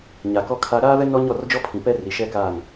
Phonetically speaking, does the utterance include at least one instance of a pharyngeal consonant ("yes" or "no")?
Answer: no